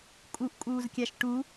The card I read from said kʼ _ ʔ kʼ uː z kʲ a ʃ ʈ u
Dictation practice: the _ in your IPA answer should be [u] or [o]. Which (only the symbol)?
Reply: u